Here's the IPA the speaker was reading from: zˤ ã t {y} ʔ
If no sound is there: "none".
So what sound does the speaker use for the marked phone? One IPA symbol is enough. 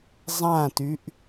y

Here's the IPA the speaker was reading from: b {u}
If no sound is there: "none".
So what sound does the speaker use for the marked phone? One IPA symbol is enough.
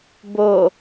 o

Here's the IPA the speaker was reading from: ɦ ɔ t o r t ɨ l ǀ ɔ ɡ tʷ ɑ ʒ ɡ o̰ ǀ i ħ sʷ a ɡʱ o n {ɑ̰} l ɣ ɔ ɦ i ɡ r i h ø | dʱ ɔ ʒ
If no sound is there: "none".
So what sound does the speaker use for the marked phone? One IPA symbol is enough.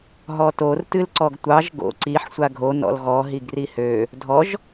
ɔ̰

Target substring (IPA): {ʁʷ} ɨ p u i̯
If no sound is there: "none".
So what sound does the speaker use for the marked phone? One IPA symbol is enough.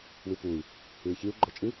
w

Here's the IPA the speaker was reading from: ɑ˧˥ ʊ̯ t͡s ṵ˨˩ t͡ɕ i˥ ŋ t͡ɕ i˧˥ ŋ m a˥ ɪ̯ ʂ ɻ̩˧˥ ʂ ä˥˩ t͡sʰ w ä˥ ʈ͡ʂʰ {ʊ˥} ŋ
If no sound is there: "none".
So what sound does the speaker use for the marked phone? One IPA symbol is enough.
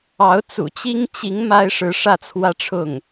ʊ˥˩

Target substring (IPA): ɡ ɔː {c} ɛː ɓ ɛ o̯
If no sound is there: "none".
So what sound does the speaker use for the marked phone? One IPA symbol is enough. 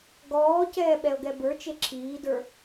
c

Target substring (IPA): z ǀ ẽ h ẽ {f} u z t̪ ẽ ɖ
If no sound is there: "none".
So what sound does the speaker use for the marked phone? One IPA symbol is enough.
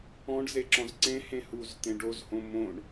h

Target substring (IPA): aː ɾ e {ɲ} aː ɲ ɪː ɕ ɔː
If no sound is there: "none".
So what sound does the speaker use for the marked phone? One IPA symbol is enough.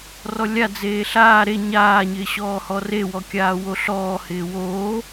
ɲ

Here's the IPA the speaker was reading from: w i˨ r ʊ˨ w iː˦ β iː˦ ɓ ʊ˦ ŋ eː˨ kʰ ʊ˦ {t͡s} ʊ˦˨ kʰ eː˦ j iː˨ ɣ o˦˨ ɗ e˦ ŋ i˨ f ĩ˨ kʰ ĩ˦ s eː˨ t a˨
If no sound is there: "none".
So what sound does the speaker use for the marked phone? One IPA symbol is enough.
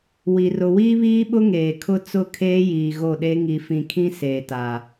t͡s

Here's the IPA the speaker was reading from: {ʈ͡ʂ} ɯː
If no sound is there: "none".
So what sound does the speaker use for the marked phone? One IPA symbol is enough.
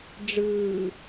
ɖ͡ʐ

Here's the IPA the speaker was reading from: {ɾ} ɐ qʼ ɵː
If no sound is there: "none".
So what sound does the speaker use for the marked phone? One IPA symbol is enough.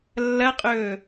lː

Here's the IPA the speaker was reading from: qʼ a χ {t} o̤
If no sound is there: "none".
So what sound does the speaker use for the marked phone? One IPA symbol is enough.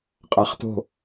t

